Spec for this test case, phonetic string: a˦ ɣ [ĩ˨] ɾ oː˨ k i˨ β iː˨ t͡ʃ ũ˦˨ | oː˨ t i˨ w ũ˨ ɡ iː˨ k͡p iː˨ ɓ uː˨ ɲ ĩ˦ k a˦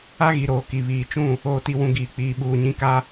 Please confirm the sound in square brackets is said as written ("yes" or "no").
no